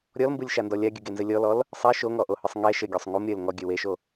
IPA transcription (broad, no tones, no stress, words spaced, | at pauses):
ɾʲɔlmbɯlʲʃandɔ lʲaɡʲɯɡenzɘ lʲɔlɔl | sˤɛ ʃoŋɔʔohɯsˤ ŋɛ ʃɘɡʲɔsˤ ŋum ɾʲɘl ŋɔɡʲɘ weʃo